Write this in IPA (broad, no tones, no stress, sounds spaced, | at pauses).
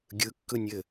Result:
ɡʲ ɯ kː ɯ nʲ ɘ